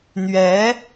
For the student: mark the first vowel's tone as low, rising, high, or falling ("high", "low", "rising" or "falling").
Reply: rising